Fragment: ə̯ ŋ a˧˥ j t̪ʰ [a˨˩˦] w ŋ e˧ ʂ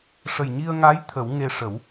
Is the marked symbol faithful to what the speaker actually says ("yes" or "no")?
no